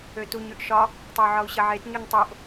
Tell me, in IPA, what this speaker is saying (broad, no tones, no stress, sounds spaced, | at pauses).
ø t u ɲ ʉ ʔ ʃ ɒ | tˤ ə u̯ ʕ ɒ u̯ ɕ ə ʕ e t ɲ u ɲ tˤ o ʔ